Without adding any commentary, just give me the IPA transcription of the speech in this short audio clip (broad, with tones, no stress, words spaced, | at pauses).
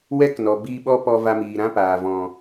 wɛ˦knɔ˨ biː˧ɓɔ˦ pɔ˧va˧miː˨ ɾã˦paː˨ vɔ̃˨